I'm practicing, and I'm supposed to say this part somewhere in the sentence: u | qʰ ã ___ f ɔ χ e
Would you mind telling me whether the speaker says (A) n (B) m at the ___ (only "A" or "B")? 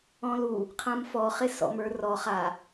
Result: B